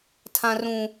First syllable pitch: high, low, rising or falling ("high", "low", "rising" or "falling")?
high